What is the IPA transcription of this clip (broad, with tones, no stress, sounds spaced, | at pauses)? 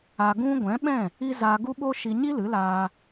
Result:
a˧ ɡ ũ˦ ɡʷ ɛ̃˨˦ ɓ ɛ̃˦˨ | i˦ z aː˧ ɡ u˦ ɓ o˦ ʃ i˧ ɲ i˦ l ɨ˨˦ l aː˧